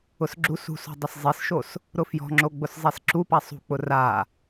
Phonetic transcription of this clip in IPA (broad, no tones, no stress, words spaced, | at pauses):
ʊsɡ͡ǁusṳso̤ dˤɪszˤisʃos | ɾʊfjɔ̤ŋ͡ǁo ɡ͡bʊszˤesǁupa sˤṳk͡pʊ ra